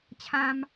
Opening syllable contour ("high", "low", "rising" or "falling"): high